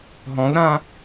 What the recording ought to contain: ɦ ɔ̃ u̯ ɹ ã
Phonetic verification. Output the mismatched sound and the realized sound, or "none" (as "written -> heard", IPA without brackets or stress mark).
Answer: ɹ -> ɾ